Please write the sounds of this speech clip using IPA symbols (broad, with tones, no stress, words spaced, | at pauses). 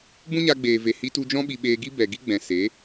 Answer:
bũ˦ɲa˧ɡ͡beː˨ve˨ hi˧tu˧d͡ʒɔ̃˦ ɓi˧ ɓeː˧ɡi˦bɛ˨ ɡi˦ɡ͡bɛ̃˨ se˨˦